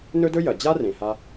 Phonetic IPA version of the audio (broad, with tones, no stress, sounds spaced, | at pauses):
n ɵ˦ d ɵ˦ j ɐ˩ d͡ʑ a˥ r ẽ˩ h a˦